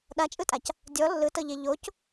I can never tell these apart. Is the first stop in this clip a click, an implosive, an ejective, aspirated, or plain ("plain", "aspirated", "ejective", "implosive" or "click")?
implosive